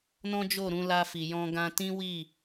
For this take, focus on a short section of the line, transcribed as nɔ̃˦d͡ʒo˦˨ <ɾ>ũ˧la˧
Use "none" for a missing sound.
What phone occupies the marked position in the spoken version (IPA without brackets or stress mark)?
ɾ